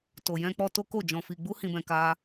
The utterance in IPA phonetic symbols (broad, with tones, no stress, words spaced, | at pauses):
to˨jɛ̃˧k͡pɔ˧ to˦ko˦˨d͡ʒɔ̃˧fi˧ ɡ͡bu˦ hĩ˧bɛ̃˧ ka˦